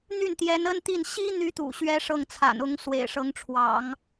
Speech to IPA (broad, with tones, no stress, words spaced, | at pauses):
n̪y˥˩nt̪jɛ˧˥nə˥nt̪i˥˩n ɕi˥ n̪y˥t̪ṵ˨˩ ɕɥɛ˥ʂɤ˥˩ŋt͡sʰa̰˨˩nʊ˧˥ŋ swḛ˨˩ɪ̯ʂɤ˧˥ŋʈ͡ʂʰwɑ̰˨˩˦ŋ